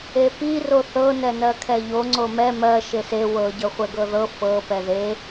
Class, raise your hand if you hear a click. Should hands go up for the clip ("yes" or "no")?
yes